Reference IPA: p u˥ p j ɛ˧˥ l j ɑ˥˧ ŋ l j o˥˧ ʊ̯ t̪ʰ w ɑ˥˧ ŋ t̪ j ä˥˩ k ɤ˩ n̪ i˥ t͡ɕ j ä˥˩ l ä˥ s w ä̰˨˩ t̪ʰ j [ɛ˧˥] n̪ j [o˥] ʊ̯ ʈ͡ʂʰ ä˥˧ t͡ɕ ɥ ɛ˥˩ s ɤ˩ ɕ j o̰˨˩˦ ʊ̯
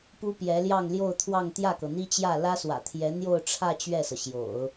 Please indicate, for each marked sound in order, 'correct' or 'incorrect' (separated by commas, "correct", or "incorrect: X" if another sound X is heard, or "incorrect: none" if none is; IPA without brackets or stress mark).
correct, incorrect: o˥˧